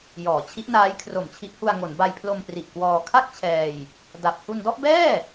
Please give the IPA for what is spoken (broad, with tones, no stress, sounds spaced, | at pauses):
j ɔː˩˦ t͡ɕʰ i˦˥ ʔ n aː˦˥ j kʰ r o˨˩ m t͡ɕʰ i˦˥ ʔ h u˧ a̯ ŋ o˩˦ n b a˧ j pʰ l o˧ m p r i˨˩ ʔ k w ɔː˧ kʰ a˥˩ k̚ t͡ɕʰ ɛː˧ j | d a˨˩ p̚ h u˧ n d ɔ˥˩ ʔ b ɛː˥˩